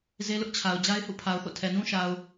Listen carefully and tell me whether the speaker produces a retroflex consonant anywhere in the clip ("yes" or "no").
no